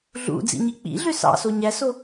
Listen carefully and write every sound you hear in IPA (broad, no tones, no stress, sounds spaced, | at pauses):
ɮ ṵ d͡z ḭ ɲ i k͡p ḭ ɮ ø s ɑ̰ s o ɲ æ s o